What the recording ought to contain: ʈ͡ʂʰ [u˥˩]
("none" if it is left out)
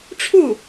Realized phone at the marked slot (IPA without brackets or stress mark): u˥˩